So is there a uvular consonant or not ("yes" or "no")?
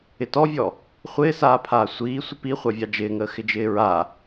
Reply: yes